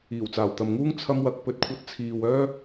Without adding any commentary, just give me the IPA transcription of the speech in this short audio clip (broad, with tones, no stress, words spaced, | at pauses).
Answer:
iː˨˩wt͡saː˨˩wt̪ɐ˨mŋuː˥ŋ t͡sʰɐ˥mwɐ˧k̚ pɵ˧t̚kʷʰɐ˧t̚t͡sʰiː˨w œː˥